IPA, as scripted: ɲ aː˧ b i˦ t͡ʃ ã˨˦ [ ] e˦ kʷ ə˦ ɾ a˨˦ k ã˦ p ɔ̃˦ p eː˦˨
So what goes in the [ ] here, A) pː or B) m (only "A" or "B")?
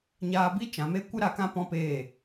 B